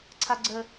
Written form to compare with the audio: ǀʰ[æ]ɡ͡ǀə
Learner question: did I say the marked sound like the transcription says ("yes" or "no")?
no